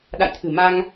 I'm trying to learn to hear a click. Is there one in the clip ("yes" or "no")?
no